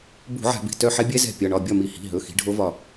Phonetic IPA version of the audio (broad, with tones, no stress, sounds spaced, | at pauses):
b ṳ˧˩˧ ʕ a̤˧˩˧ b i̤˩˧˩ t œ˦˨ ħ ɛ˦˥ bʲ ɛ˦˥ z ɛ̤˦˨ pʲ ɒ˩˧˩ ɳ ɒ˦˨ bʲ ɒ˦˨ m i˧˩˧ h i̤˩˧˩ ɦ ɵ˩˧˩ x i̤˨˦ ɖʱ o˦˥ v ɒ˦˨